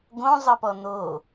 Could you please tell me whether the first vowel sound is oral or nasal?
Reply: nasal